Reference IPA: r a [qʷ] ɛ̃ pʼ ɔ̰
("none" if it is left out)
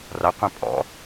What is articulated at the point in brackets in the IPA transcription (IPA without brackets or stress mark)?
qʷ